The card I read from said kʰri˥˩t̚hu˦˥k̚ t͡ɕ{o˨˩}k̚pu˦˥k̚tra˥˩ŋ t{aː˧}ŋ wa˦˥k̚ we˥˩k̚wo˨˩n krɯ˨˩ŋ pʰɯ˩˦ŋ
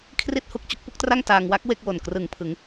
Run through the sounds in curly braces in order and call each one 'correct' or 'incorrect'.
incorrect: o˦˥, correct

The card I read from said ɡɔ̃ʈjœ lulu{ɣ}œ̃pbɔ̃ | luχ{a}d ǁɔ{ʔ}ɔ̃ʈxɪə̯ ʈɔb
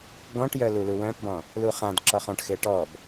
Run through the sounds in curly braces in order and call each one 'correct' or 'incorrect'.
incorrect: w, incorrect: ã, incorrect: χ

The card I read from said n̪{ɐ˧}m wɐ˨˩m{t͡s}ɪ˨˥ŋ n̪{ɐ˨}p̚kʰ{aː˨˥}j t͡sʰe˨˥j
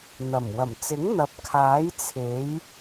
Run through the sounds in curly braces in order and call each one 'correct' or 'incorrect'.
incorrect: ɐ˨˩, correct, correct, correct

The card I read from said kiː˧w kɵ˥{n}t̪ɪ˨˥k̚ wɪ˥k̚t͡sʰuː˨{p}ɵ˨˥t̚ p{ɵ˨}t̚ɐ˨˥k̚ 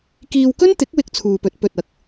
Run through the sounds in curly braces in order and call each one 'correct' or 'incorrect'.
correct, correct, correct

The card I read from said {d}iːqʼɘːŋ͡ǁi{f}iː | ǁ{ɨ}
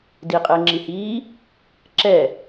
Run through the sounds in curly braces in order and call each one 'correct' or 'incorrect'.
correct, incorrect: h, incorrect: ɛ

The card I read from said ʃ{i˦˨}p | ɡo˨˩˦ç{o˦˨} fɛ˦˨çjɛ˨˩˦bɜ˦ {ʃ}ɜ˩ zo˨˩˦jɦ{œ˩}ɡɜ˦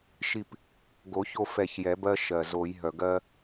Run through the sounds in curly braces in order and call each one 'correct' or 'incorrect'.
correct, correct, correct, correct

